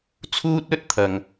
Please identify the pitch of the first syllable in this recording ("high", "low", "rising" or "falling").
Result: high